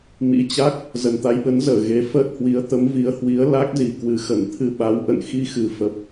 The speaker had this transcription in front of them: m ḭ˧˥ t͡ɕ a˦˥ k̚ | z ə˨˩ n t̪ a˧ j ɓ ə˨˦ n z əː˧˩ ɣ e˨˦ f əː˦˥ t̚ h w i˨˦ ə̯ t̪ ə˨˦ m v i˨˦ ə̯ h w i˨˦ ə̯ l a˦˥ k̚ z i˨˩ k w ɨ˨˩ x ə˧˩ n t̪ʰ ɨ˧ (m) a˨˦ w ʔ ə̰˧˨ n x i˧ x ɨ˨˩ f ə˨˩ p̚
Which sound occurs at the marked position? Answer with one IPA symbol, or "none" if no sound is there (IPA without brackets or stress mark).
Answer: ɓ